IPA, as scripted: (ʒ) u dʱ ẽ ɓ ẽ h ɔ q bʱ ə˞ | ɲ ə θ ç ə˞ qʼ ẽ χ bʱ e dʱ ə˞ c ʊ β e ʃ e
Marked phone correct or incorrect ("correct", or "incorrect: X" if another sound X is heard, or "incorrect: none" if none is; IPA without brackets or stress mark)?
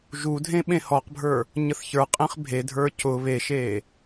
correct